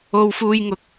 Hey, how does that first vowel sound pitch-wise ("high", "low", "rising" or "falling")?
high